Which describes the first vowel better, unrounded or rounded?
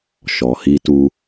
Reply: rounded